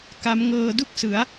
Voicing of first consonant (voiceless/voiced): voiceless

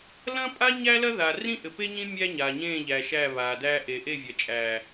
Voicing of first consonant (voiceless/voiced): voiced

